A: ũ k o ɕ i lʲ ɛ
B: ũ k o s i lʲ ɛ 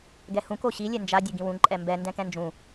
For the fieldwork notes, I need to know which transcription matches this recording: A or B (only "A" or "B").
A